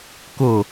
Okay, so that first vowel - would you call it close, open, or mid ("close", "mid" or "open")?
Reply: close